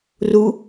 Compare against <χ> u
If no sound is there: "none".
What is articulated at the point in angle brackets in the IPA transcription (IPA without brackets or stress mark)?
r